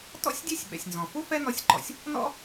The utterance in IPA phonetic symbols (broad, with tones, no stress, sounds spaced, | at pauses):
t ɔ̰˥ sʲ dʲ ɛ˥ sʲ ɓ ɛ̰˩ sʲ n z ɔ̃˩ f u˥ f ɛ˥ n ɔ˧ sʲ ǃ ɔ̰˩ sʲ | n ɔ̰˥